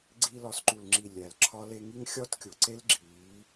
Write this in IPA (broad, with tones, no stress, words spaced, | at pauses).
ɡ͡ǀi˧ lɒ˨sǃu˨lŋ͡ǁi˨ lʲæ˨l ǁʰɒ˧le˧ŋi˦ŋ xʲɒ˦tkʲo˨ ǀe˦lɡ͡ǁiː˨˦